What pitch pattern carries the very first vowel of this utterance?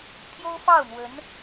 high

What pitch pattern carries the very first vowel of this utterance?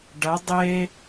rising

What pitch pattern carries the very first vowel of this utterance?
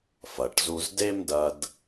low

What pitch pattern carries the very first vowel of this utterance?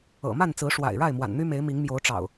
low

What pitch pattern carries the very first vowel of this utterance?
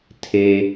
low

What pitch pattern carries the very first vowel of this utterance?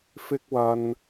high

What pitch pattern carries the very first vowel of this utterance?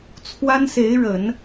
high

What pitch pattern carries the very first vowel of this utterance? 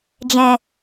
low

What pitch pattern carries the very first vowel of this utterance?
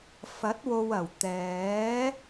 rising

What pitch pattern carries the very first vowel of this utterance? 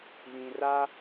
low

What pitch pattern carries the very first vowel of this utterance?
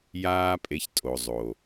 high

